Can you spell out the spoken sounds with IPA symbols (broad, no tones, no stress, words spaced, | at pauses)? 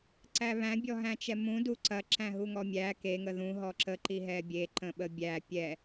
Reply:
ǀæβæ̃ bʲɔɦæ̃t͡ʃɛmũ duǀɐ ǁæ̃ɦuŋɔmʲæ ke ŋəðũ ɦɔǁə ǃiɦɛbʲe ǃə̃ɓəbʲæ pʲɛ